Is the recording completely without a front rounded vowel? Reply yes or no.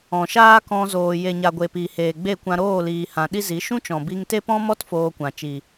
yes